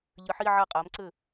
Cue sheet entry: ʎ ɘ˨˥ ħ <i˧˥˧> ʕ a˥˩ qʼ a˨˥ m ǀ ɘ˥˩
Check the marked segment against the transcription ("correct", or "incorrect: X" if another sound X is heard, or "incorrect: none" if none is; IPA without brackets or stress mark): correct